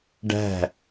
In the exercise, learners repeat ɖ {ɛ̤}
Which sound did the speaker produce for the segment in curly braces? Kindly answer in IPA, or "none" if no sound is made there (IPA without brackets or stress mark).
æ̤